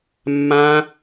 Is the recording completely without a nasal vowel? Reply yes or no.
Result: no